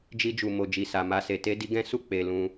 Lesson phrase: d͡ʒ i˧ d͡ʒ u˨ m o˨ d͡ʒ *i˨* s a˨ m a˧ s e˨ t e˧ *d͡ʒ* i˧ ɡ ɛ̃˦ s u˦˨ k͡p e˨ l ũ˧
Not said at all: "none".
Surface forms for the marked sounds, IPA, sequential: i˨, d

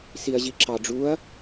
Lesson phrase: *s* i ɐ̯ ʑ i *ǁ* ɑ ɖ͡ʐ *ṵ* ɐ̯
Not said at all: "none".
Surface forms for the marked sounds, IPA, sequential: s, ǁ, u

